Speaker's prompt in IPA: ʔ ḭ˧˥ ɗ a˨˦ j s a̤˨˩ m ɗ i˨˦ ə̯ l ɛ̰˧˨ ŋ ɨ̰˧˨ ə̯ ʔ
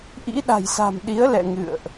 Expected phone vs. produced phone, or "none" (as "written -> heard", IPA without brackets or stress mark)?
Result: a˨˦ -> a̤˨˩